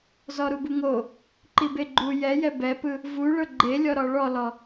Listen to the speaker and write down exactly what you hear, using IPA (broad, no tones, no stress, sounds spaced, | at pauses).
z ɔ ɾ u b u ŋ o | ǃ i b e ɡ͡ǃ u j ɛ j ɛ b ɛ p ɯ | v u ɭ ɤ ɡ͡ǃ e lʲ ɔ ɾ ɔ ɭ ɔ l ɔ